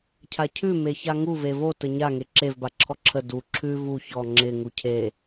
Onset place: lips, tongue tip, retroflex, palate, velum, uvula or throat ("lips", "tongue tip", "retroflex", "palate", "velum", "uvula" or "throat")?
palate